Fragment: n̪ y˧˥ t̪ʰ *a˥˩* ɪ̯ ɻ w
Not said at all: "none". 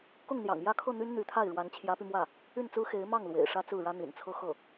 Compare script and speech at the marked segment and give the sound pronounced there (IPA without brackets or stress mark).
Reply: a˥˩